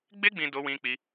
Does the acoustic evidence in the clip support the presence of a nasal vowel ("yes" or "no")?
yes